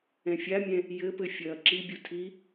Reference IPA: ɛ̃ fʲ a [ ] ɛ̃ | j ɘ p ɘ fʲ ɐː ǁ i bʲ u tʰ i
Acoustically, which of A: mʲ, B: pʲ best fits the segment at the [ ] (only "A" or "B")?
A